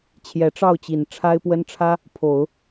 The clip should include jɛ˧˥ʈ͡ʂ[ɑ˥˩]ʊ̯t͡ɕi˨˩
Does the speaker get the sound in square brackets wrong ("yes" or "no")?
no